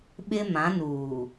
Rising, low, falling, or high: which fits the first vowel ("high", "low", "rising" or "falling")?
high